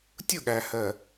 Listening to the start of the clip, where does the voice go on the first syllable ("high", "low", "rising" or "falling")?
falling